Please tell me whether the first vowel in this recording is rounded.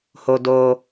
yes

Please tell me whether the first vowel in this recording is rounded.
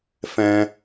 no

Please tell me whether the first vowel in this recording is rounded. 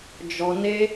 yes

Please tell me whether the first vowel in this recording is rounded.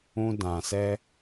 yes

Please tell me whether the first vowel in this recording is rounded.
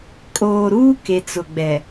yes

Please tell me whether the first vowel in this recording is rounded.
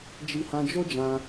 no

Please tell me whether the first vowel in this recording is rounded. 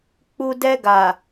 yes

